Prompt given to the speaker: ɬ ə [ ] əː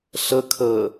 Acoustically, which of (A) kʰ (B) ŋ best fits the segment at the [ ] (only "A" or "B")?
A